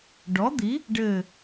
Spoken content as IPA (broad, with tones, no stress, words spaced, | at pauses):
ɖɔ˨˥d̪i˨˥ | ɖɘː˥˧